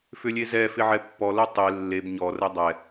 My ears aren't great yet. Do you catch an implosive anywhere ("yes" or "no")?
no